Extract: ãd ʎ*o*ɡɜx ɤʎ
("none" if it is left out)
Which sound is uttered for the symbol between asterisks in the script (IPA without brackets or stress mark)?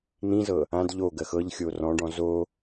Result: o